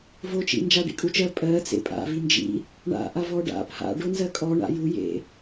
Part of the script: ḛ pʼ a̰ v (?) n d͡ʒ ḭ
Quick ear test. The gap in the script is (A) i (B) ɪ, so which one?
A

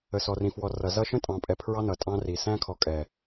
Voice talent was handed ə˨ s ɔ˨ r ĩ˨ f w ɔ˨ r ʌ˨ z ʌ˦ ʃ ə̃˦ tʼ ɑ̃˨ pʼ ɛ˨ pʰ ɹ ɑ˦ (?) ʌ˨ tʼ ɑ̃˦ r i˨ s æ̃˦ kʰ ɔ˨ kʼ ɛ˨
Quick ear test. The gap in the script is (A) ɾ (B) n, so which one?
B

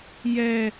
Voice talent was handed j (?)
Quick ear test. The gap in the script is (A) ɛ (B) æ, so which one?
A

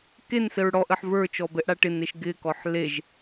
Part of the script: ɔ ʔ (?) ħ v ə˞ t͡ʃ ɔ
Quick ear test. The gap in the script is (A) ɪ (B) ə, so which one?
B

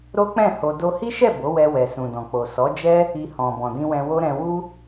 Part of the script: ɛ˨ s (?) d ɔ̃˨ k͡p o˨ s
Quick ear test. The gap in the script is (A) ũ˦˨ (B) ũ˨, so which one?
B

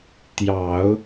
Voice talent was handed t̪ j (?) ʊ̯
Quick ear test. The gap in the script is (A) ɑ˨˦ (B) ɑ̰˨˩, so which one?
A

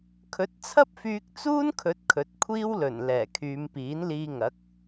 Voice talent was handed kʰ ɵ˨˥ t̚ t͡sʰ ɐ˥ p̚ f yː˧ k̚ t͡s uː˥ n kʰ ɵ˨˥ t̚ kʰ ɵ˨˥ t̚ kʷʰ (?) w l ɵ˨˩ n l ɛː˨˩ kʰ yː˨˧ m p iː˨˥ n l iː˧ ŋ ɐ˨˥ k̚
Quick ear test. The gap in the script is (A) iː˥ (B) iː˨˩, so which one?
A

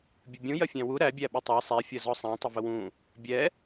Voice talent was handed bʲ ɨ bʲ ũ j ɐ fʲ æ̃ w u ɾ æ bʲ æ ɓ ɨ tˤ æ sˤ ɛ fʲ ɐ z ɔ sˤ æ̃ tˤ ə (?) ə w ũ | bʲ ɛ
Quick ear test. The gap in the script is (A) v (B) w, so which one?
A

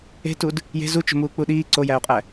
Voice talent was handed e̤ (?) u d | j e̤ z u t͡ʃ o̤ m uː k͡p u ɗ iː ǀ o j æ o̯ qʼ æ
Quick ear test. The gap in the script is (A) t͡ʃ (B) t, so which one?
B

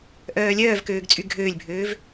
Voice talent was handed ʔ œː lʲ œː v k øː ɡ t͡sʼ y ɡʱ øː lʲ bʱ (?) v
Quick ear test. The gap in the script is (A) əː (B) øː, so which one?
B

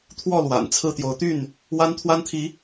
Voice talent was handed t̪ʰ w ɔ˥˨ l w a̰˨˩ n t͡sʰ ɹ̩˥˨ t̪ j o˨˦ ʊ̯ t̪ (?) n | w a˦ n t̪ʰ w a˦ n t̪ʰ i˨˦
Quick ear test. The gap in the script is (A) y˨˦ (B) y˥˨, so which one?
B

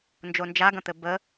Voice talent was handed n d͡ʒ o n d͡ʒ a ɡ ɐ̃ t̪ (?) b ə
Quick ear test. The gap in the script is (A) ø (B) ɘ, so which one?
B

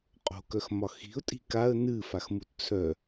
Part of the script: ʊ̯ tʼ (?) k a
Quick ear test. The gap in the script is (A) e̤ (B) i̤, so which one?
B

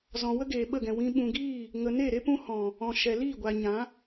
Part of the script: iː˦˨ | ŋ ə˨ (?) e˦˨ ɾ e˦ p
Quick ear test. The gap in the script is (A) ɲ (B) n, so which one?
B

